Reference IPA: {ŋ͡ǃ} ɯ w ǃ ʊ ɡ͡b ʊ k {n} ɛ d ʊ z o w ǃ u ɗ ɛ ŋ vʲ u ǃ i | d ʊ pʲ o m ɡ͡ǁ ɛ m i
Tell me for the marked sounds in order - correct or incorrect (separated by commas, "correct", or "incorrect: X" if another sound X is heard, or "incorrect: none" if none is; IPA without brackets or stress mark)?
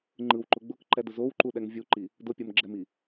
correct, incorrect: ǃ